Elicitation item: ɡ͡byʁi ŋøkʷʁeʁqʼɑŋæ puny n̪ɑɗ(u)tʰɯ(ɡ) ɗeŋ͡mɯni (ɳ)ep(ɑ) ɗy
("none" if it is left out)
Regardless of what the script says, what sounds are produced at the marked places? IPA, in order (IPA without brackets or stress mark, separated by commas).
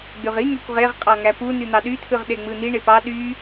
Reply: y, ʁ, ɳ, ɑ